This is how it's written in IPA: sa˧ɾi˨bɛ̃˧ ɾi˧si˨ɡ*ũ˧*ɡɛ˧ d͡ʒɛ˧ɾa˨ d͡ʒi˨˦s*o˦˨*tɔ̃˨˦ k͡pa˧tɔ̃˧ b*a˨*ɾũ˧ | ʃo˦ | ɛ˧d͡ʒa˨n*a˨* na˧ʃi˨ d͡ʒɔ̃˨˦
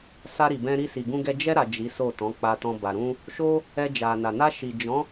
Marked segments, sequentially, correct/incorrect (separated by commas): correct, correct, correct, correct